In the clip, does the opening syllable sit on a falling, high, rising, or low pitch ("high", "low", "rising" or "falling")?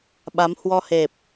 rising